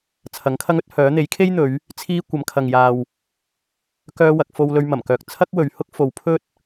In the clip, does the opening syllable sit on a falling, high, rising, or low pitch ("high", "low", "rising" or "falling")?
rising